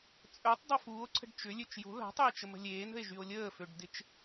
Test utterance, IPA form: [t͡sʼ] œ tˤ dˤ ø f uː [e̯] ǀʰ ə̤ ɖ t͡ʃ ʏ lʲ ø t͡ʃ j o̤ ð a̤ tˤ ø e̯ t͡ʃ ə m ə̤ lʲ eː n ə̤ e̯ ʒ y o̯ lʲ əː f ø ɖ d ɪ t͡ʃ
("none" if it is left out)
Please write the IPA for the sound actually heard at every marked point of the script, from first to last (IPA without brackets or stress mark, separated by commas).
t͡sʼ, o̯